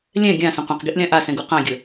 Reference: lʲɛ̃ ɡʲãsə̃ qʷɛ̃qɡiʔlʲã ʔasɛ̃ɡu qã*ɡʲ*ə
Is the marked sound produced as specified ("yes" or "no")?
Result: yes